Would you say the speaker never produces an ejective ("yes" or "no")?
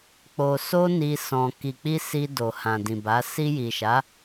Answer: yes